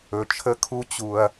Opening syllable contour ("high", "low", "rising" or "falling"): low